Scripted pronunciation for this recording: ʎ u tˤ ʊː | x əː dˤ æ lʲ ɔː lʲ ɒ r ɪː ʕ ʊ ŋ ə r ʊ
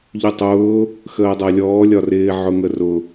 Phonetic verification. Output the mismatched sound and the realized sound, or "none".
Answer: none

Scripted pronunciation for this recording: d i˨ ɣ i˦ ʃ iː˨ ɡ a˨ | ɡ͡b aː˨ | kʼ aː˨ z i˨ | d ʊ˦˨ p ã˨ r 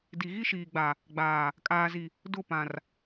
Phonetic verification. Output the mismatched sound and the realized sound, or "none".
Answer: ɡ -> ɡ͡b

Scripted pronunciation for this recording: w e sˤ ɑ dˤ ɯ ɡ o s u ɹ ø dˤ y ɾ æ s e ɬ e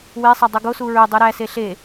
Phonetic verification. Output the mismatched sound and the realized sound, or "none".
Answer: none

